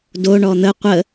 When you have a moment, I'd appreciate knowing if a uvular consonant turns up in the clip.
yes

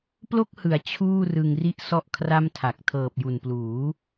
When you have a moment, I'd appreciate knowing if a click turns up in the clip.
no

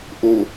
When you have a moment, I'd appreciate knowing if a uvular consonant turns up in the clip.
no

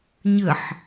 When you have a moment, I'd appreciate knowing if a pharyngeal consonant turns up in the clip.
yes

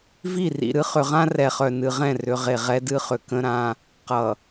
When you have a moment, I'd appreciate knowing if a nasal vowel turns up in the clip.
yes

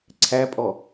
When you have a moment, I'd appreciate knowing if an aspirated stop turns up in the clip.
yes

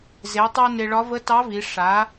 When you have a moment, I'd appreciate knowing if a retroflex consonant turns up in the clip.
yes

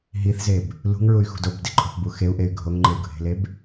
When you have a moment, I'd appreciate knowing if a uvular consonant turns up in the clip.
no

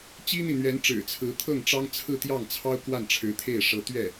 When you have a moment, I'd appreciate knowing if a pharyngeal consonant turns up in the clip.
no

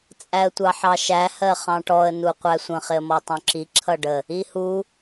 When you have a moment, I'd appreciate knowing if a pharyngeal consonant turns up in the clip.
yes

